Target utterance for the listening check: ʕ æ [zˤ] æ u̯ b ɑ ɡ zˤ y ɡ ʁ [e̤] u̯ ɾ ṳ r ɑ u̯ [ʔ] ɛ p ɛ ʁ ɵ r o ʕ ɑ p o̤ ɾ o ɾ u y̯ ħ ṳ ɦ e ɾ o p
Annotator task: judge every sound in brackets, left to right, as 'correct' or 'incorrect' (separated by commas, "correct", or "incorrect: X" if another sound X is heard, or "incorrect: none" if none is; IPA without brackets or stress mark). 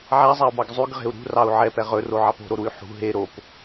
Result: correct, correct, incorrect: ʕ